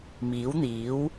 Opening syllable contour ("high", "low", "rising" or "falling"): rising